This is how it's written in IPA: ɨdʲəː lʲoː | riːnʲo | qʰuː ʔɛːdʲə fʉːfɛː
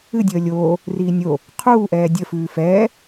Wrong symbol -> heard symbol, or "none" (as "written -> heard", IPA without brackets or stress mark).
none